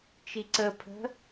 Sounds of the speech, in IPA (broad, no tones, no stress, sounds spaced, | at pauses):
t͡ʃ i ǀ ə pʰ ə̤